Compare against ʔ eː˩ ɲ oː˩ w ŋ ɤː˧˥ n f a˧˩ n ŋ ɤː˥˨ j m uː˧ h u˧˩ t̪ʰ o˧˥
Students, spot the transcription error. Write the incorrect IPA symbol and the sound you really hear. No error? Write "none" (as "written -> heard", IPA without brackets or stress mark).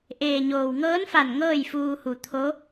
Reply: m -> f